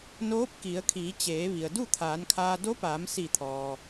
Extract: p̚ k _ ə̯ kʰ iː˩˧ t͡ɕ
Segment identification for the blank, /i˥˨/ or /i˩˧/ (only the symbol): i˩˧